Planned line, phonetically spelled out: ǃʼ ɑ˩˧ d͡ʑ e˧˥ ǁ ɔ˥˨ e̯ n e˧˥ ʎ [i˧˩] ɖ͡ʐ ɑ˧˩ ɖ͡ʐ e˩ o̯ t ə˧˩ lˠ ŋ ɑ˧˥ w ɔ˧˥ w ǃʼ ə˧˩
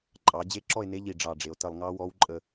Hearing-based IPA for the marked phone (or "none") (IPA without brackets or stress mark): i˧˩